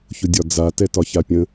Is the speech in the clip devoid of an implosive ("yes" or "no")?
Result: yes